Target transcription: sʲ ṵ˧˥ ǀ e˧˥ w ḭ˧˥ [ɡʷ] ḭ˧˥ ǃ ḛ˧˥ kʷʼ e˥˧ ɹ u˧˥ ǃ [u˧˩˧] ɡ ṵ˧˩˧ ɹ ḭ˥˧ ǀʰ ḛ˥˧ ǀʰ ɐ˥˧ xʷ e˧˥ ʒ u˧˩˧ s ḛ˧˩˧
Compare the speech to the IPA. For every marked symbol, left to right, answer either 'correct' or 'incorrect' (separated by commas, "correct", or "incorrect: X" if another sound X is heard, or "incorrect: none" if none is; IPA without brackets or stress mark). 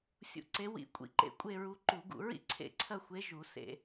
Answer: incorrect: kʷʼ, correct